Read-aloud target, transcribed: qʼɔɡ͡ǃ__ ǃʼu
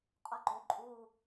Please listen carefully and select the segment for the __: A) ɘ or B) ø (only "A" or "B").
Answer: B